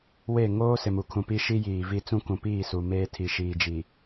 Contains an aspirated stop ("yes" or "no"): yes